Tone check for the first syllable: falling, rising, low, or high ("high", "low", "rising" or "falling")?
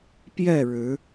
falling